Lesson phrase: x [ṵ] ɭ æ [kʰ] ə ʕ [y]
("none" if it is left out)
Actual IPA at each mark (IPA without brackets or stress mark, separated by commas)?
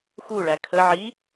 u, kʰ, i